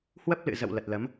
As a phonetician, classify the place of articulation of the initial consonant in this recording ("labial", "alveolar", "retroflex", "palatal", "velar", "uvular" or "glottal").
glottal